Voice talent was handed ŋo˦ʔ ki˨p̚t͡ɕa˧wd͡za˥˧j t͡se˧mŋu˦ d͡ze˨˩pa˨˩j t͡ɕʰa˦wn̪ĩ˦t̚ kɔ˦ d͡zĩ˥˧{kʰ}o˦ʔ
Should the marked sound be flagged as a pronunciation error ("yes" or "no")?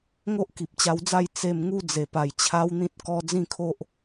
no